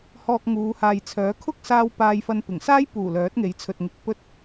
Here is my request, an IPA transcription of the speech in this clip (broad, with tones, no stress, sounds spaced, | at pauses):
h ɔː˧ k̚ ŋ uː˨˧ h aː˨ j t͡sʰ œː˨˥ kʰ ʊ˥ k̚ s aː˥ w p aː˧ j f ɐ˧ n p ɪ˨˩ ŋ s aː˥ j p uː˨˩ l œː˨˥ t̚ ŋ e˨˧ j t͡sʰ ɵ˨ t̚ ŋ ɪ˨˥ k̚ p ɵ˧ t̚